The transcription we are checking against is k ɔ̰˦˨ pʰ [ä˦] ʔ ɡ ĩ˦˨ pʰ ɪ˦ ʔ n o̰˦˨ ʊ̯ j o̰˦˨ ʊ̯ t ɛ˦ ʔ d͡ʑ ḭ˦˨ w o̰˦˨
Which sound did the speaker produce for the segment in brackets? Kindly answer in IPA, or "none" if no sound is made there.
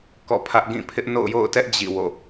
ä˦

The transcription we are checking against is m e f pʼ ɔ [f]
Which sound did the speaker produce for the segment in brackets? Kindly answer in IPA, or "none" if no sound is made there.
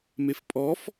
f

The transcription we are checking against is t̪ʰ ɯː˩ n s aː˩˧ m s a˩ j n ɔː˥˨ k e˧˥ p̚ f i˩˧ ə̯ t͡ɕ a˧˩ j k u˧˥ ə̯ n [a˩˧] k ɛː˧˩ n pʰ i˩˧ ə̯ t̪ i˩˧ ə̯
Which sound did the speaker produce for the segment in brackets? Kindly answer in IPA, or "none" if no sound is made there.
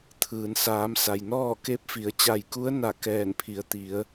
a˧˩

